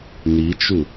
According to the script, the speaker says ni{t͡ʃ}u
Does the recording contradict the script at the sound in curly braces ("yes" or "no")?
no